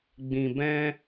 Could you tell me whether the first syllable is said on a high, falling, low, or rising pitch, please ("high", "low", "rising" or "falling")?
low